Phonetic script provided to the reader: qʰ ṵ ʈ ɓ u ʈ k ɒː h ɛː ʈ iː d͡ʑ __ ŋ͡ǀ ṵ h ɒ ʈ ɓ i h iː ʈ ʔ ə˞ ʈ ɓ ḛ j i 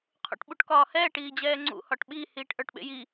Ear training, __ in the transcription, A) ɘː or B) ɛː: B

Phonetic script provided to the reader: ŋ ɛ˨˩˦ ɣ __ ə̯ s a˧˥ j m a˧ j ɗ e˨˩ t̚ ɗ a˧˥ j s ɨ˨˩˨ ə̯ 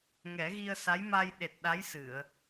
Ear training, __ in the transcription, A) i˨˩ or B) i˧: B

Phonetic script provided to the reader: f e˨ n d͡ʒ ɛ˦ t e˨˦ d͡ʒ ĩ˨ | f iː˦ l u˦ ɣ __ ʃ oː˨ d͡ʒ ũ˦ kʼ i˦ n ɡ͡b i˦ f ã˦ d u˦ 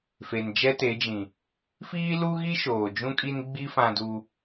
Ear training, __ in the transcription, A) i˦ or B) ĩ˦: A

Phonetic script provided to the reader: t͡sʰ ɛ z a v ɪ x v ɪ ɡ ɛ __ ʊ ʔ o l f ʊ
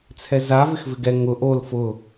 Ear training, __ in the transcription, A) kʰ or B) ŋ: B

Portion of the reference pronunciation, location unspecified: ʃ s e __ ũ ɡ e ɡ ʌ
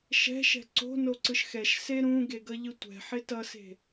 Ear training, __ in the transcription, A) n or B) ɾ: B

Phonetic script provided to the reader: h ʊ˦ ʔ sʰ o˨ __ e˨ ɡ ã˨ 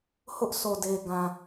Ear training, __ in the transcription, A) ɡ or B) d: B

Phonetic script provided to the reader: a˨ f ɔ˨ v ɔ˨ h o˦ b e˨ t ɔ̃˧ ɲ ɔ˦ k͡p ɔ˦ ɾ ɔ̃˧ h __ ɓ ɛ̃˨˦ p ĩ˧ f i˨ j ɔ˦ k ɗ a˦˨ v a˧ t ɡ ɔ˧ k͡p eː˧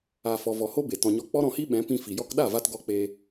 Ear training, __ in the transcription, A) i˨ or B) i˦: B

